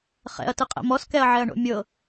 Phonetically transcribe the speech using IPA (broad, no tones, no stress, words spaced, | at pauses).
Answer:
χɛ̰ɐ̯tɯqʼɛ̰ mɔskɛɐ̯ʕɛɐ̯ɳo̰ mʲɤ